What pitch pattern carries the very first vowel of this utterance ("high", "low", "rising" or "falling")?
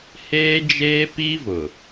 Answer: high